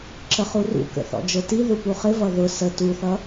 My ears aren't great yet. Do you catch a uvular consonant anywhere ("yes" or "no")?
yes